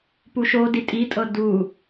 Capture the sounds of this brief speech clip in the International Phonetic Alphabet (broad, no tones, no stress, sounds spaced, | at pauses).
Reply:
p u ʃ o d i tʼ i tʼ ɤ d u